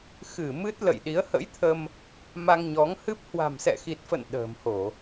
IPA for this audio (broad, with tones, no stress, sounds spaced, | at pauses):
x ɨ˧˩ m ɨ˦˥ t̚ l ə̰˧˨ j ɗ i˨˦ ə̯ h ə̰˧˥ j t̪ʰ ə˧ m | m a˧ ŋ ɲ ɔ˨˦ ŋ h ɨ˦˥ p̚ h w a̤˨˩ m s ɛ̰˧˨ x i˨˩ t̚ f ə̰˧˨ n ɗ ə̤ː˨˩ m h o˧˩˨